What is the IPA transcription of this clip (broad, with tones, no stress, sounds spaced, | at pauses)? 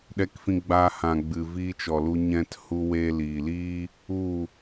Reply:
ɗ ɛ˧ k f ĩ˧ ɡ͡b aː˧ h ã˨ ɡ͡b ɨ˨ v iː˧ t͡ʃ ɔ˨ l u˧ ɲ ɛ̃˧ t h u˧ w e˧ l iː˨ l iː˦ | u˦˨